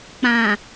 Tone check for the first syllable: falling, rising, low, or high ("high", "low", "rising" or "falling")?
low